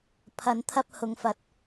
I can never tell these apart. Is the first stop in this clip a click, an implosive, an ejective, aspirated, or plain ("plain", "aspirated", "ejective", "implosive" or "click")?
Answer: aspirated